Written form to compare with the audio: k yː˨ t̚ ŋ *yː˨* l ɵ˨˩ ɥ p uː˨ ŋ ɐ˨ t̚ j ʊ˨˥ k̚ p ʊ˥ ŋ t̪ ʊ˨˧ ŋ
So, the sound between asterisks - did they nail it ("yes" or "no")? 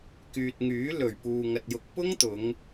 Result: no